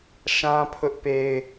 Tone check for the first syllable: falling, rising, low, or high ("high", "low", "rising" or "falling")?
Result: high